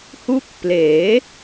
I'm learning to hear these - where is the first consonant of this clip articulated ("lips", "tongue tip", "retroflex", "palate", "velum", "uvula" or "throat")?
throat